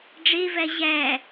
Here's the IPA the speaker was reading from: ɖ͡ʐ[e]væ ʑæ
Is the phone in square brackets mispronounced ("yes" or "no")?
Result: no